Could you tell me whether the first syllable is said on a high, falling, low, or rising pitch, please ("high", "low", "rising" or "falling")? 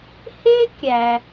high